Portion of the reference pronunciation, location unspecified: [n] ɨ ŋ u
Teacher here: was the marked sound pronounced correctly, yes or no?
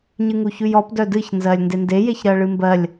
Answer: no